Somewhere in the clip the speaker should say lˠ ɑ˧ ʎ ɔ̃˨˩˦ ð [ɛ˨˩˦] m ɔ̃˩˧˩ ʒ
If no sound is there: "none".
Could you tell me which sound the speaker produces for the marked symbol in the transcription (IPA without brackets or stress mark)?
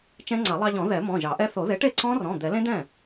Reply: ɛ˨˩˦